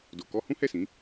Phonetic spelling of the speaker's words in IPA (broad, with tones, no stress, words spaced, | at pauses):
do˧kɔ˦ hũ˦hɛ˦˨sĩ˨˦